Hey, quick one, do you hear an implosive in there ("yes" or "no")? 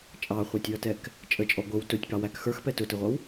no